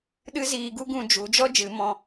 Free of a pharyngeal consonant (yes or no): yes